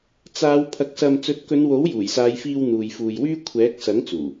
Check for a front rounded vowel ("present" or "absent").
present